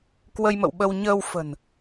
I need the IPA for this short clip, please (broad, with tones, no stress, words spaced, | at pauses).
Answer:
kwə˧jmə̰˧˨wɓə˧w ɲəː˧wfə̤˨˩n